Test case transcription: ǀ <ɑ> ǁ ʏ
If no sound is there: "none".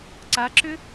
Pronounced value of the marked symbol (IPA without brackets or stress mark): a